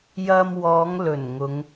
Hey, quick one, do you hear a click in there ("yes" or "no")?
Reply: no